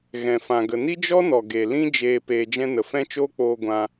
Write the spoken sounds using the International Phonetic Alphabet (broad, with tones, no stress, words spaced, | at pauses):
ɣɛ̃˧fã˧ɡə˧ ni˦d͡ʒɔ˦nɔ˨ ɡe˨ lĩ˦ d͡ʒeː˧ peː˧d͡ʒɛ̃˦ nə˨fɛ̃˦t͡ʃoː˦k͡poː˧ ɡʷã˧